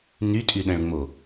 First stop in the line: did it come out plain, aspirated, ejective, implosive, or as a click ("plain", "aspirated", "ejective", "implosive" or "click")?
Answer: ejective